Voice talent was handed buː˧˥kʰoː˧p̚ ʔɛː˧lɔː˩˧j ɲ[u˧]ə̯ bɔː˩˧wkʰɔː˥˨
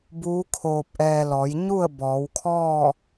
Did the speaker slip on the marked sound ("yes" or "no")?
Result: yes